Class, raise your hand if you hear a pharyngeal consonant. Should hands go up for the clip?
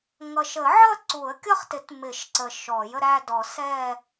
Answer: yes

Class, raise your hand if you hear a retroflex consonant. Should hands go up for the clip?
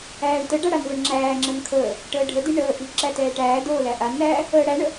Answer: yes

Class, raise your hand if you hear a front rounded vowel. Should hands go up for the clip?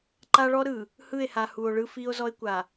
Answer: no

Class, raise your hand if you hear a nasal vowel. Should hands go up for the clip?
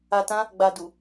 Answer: yes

